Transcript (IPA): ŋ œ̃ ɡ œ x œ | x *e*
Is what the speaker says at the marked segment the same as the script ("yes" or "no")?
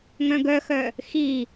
no